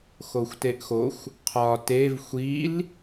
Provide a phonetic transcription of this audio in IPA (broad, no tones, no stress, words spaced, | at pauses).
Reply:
xoxʷteʔxoxʷ | qʰɒ tev xʷil